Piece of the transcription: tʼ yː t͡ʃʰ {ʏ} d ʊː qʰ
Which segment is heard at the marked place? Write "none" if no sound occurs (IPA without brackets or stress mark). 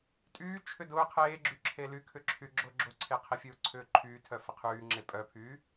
ʏ